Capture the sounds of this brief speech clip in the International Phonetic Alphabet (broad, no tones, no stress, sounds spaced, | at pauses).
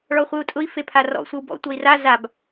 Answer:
ɭ ɔ χʷ ɨ u̯ tʼ ʊ i̯ f e pʰ a r ɔ̰ sʷ e w b ɔ̰ tʷ ʌ i̯ r a z a b